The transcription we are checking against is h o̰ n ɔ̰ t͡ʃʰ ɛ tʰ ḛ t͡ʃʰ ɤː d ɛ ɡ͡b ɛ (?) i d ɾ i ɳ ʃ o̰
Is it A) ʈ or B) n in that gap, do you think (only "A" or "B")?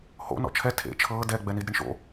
B